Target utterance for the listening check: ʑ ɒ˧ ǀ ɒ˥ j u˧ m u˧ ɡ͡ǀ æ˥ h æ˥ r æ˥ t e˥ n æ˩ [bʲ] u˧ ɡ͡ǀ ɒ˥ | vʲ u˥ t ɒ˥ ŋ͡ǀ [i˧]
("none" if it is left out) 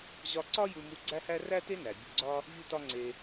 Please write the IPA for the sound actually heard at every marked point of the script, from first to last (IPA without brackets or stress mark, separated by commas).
bʲ, e˧